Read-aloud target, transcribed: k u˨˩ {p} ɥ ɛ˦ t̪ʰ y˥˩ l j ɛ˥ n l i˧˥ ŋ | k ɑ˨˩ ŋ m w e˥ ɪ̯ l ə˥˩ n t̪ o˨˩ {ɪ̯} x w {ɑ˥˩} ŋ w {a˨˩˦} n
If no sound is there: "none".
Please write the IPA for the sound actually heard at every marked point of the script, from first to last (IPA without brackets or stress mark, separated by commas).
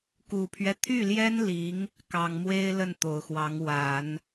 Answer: pʰ, ʊ̯, ɑ˧˥, a˨˩˦